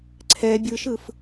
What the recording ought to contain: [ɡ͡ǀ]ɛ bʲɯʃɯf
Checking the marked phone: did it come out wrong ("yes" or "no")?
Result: yes